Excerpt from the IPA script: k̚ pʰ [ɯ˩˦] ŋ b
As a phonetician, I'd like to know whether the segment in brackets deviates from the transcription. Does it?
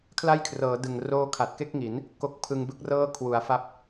yes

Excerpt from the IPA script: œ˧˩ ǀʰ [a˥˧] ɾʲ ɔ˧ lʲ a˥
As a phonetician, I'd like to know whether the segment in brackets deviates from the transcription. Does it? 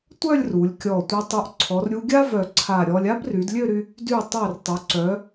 yes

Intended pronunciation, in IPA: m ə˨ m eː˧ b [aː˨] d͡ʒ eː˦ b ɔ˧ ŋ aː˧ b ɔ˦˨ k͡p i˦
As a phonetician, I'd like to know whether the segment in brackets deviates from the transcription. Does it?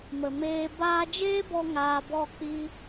yes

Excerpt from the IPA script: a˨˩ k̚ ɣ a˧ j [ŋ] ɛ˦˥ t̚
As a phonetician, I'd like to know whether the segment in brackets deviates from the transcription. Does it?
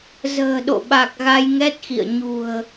no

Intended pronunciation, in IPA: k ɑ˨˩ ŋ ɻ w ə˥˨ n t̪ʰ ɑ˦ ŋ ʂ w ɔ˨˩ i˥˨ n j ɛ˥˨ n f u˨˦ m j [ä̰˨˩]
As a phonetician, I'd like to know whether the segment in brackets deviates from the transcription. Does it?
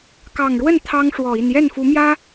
yes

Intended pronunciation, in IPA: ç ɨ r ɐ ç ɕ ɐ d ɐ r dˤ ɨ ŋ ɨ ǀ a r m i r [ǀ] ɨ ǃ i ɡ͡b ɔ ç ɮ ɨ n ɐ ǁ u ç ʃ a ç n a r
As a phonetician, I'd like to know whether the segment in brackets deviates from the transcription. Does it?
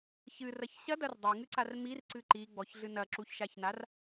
no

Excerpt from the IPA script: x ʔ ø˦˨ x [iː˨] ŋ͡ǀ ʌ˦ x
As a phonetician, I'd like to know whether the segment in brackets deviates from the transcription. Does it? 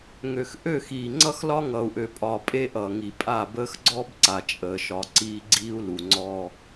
no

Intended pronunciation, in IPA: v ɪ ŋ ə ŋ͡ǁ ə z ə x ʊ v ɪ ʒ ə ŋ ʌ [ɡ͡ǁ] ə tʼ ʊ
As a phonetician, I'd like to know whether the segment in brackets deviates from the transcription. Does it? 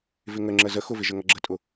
no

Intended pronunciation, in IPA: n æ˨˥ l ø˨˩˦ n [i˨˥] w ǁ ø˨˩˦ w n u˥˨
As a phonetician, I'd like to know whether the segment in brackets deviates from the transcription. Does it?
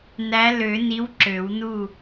no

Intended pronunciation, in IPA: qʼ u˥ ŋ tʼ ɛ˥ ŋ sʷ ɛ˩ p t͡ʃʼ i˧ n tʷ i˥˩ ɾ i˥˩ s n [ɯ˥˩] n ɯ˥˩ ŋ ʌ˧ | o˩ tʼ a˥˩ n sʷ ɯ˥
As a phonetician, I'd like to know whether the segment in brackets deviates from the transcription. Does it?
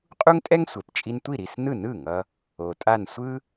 no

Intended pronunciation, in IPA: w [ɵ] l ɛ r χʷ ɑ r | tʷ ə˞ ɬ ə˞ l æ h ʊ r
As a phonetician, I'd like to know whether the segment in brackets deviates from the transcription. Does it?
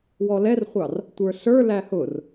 yes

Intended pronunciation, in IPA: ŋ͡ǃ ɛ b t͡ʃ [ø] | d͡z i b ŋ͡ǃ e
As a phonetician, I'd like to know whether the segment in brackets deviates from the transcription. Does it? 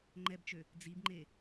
no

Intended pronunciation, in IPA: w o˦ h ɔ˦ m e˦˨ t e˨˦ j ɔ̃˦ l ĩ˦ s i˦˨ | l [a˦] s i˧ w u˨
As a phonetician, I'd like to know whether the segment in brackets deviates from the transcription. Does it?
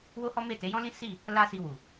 no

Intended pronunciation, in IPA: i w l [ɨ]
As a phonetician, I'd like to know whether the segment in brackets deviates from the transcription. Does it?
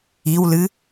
no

